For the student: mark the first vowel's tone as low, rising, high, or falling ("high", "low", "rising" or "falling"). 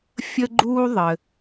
high